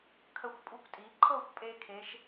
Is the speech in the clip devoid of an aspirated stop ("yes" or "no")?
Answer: no